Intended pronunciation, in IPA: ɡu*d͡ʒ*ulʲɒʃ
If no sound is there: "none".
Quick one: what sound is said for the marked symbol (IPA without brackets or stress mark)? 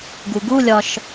ɡ